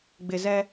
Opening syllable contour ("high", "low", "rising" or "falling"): low